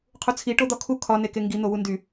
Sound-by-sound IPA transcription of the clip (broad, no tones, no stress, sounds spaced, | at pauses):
qʰ u t͡sʰ i ʈ o d̪ ɒ kʰ u kʰ ɒ n e k e ŋ ɡ i n̪ o w u n d y